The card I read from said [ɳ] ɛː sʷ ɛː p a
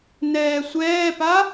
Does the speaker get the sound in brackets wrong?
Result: yes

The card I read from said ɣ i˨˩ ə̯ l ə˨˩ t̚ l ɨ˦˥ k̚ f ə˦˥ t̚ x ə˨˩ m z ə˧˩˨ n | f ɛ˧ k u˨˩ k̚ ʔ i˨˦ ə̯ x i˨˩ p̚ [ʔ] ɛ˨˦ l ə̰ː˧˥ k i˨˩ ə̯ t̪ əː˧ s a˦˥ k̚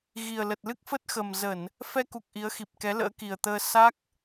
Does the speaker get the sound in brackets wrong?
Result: yes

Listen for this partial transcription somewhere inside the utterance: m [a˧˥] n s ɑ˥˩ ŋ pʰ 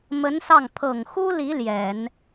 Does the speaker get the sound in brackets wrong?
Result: yes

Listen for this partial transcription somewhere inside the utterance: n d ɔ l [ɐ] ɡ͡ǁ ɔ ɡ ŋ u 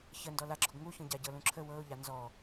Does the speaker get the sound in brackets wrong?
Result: yes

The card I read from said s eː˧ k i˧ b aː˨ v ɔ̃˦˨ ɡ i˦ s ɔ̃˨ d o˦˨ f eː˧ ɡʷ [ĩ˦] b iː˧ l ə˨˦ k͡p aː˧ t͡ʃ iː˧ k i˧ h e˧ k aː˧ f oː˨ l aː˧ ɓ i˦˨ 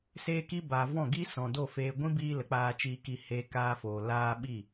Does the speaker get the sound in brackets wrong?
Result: no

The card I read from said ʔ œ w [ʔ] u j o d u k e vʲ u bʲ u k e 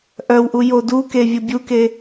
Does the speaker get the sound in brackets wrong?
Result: no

